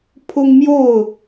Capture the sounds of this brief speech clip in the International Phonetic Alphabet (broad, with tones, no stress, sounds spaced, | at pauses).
pʰ ʊ˦ ŋ m j o˥˨ ʊ̯